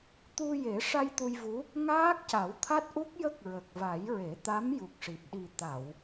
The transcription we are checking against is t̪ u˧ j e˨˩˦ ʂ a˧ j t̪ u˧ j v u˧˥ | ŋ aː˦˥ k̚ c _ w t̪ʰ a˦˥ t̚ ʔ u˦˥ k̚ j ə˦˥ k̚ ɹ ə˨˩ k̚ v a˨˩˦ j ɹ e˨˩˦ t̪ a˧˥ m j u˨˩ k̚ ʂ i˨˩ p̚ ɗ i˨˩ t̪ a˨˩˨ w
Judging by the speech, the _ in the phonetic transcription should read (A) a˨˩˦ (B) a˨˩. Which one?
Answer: A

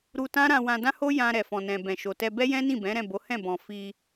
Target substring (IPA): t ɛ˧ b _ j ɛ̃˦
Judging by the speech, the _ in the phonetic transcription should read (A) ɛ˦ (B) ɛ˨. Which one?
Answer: A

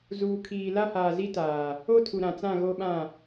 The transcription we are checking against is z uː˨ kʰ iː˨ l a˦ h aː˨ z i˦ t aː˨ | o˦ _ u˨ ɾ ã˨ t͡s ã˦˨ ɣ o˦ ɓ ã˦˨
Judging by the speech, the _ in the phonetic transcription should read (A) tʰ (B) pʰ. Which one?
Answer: A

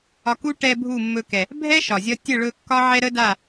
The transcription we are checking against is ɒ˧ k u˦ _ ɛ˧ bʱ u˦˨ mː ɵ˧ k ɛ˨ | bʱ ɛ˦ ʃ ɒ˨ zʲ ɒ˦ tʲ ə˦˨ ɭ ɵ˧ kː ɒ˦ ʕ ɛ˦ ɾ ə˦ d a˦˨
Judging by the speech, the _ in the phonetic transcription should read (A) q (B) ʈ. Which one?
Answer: B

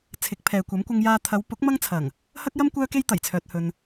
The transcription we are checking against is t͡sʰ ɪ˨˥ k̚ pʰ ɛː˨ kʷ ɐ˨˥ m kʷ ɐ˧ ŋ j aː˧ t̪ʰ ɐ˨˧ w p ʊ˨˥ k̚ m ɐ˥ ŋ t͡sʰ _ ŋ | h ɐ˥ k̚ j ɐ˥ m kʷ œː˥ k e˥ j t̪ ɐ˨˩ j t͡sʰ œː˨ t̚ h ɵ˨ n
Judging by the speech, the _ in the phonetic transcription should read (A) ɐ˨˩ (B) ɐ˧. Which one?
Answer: A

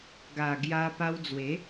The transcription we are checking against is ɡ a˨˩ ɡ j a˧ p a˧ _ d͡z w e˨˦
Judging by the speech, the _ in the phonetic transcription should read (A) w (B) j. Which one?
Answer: A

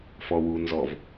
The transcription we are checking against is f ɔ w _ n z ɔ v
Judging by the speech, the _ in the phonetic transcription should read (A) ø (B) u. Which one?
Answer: B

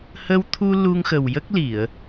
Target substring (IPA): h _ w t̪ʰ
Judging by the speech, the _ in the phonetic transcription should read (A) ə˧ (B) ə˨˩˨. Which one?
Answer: A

